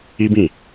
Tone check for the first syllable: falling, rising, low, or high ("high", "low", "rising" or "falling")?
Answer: high